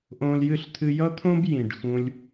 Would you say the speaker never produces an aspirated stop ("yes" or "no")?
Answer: no